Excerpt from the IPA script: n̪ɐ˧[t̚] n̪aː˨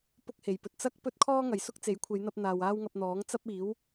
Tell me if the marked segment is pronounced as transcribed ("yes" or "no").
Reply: no